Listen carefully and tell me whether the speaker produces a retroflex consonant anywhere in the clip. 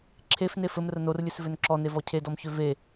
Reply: no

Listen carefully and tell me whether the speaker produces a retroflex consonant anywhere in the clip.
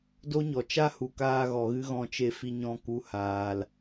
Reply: no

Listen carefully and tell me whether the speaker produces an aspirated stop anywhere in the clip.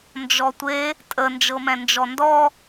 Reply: no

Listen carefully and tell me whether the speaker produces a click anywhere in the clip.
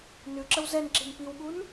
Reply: yes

